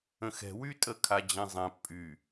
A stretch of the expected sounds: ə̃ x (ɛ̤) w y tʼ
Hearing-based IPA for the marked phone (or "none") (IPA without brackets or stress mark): ɛ̤